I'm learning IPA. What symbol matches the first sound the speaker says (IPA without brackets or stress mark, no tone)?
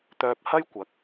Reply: t̪